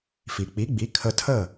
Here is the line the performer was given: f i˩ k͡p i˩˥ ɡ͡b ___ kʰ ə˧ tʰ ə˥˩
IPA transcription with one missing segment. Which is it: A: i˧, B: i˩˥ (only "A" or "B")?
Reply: B